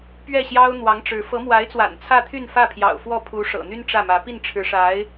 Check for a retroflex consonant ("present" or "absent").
present